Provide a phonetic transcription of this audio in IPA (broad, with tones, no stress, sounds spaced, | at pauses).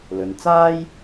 l ɵ˨ n t͡s aː˥ j